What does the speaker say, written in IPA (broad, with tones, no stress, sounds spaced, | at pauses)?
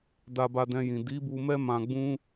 d a˧ b a˧ d ɛ̃˧ j ĩ˨ d i˨˦ b u˧ m ɛ˦ m ã˧ ɡ͡b ũ˦